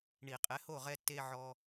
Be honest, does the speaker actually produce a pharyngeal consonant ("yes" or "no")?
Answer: yes